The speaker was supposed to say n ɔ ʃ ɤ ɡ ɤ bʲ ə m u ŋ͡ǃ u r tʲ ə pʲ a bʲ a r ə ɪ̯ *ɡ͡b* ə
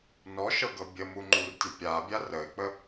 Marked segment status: incorrect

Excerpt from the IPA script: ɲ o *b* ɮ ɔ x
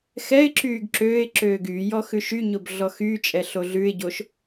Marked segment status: correct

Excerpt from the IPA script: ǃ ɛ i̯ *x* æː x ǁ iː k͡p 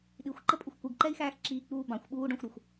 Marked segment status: correct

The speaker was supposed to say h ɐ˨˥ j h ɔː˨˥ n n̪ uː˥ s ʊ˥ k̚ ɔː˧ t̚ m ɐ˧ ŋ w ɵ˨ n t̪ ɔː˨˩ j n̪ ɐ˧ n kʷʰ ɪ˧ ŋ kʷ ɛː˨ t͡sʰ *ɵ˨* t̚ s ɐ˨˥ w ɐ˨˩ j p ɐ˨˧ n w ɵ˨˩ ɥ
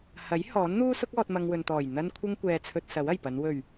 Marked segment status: correct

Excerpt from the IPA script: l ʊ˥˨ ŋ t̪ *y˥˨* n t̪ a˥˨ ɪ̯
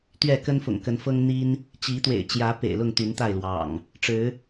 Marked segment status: incorrect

